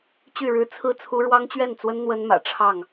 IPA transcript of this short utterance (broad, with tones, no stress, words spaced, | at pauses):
t͡ɕy˥˨ɻɻ̩˦ t͡sʰɹ̩˥˨t͡sʰu˦ ɻwɑ˦ŋt͡ɕɥɛ˥˨nt͡swə˦n n̪wə˦nmä̰˨˩ʈ͡ʂʰɑ˥˨ŋ